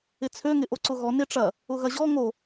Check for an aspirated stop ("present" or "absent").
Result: present